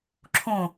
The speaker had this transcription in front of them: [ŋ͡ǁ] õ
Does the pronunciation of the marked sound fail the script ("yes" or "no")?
yes